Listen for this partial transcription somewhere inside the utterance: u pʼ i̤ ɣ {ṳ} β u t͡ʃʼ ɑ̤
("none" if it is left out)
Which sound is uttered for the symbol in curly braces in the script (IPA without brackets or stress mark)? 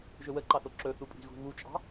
ṳ